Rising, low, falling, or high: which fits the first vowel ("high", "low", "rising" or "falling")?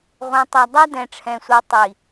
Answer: low